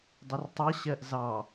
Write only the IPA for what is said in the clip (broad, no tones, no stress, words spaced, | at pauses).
dˤɪrtˤɜɕɜʔ zɑ